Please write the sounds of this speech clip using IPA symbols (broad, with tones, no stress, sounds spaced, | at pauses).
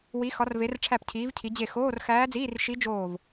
w i˩˧ x ɒ˩˧ r v e˩˧ r ʈ͡ʂʰ æ˧˩ p cʰ iː˩˧ v cʰ i˩˧ d͡ʑ e˧˩ x oː˧˥˧ r x æː˧˥ d͡z iː˧˥˧ r ʃ i˧˥ d͡ʒ oː˧˩ v